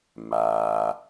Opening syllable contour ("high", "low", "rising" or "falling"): low